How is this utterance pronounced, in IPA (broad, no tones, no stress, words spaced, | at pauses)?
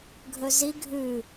ɡʱɵzi ɡʱʉ